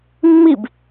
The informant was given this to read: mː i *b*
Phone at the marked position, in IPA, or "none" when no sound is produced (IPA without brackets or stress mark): b